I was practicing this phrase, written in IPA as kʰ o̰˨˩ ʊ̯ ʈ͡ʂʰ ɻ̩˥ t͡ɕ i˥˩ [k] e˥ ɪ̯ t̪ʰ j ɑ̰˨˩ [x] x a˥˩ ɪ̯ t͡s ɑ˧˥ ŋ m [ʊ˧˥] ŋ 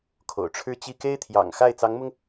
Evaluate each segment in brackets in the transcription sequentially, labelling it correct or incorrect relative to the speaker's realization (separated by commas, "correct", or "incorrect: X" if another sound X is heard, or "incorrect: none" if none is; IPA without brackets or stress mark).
correct, incorrect: ŋ, incorrect: ʊ˧